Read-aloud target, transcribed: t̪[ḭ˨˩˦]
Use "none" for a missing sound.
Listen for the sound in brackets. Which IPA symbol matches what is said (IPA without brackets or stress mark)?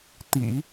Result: ḭ˨˩˦